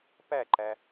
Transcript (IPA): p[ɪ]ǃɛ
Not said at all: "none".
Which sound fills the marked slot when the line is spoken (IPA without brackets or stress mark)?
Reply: ɛ